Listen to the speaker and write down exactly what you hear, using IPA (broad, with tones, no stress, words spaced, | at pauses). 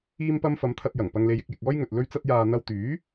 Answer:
iː˧mpɐ˧m fɐ˨˧mt̪ʰɐ˧t̚ jɐ˨˩ŋpɐ˧ŋle˧j ɪ˧k̚jɪ˨k̚ɔː˥j ŋɵ˨t̚ lɵ˧ɥt͡sɐ˧t̚jaː˨ n̪ɐ˧wt̪yː˨˥